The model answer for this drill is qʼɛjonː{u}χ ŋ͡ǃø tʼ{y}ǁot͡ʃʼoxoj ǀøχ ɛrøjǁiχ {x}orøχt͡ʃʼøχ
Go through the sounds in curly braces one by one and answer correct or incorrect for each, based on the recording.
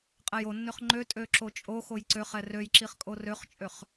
incorrect: ø, incorrect: ø, incorrect: kʼ

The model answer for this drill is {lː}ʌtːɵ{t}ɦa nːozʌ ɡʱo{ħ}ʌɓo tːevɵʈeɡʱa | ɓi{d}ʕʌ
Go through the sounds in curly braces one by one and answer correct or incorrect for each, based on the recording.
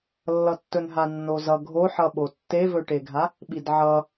correct, incorrect: n, correct, correct

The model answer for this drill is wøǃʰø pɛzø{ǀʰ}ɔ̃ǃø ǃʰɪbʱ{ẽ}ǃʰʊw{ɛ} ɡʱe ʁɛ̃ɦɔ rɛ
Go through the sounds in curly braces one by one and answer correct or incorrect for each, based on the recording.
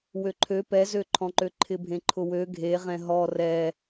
incorrect: ǃʰ, correct, incorrect: ø

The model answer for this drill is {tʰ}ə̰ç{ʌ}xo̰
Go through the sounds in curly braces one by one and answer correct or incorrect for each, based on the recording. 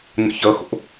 incorrect: n, correct

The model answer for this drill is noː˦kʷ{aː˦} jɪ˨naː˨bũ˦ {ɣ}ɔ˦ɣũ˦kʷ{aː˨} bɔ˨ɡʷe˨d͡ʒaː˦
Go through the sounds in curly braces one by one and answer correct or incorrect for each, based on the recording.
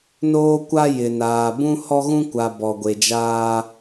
incorrect: a˦, incorrect: h, incorrect: a˨

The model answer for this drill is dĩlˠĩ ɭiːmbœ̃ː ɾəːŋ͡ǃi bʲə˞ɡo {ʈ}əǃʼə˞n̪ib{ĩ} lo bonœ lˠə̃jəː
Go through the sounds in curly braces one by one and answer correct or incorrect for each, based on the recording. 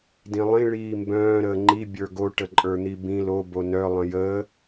correct, correct

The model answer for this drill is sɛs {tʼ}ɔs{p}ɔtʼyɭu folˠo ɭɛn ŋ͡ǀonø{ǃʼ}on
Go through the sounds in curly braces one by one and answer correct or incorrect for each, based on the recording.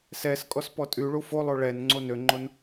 incorrect: kʼ, correct, incorrect: ŋ͡ǃ

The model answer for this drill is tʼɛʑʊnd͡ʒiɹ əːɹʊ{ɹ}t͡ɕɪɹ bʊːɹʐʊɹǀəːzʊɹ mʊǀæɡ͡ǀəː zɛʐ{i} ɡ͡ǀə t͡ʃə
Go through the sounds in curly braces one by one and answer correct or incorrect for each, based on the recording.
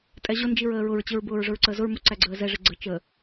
correct, incorrect: ɪ

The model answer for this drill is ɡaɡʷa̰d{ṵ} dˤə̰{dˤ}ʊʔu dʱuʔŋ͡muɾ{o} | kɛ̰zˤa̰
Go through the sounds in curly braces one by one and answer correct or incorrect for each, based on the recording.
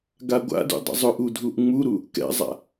correct, incorrect: zˤ, incorrect: u

